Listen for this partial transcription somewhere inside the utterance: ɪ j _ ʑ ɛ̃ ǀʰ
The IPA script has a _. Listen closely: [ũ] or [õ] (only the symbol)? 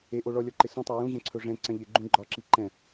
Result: ũ